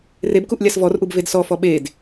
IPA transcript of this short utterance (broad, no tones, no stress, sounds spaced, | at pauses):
r e b k u ʔ lʲ a s v ɔ r ʔ u b v e d s ɔ f ɔ ɓ e d